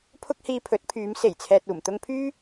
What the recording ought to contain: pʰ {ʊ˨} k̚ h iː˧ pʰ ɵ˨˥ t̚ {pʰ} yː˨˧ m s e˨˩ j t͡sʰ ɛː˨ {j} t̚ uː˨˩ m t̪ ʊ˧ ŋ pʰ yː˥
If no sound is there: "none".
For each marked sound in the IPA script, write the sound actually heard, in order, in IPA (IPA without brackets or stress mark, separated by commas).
ʊ˥, pʰ, none